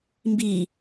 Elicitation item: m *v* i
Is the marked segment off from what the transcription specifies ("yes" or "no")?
yes